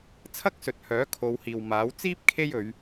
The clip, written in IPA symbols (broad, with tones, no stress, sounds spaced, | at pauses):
t͡sʰ ɐ˥ k̚ s ɵ˨ t̚ h œː˨˥ kʰ o˨˧ w h iː˨ w m aː˨˥ w t͡s iː˥ p̚ kʰ e˥ j ɵ˨˧ ɥ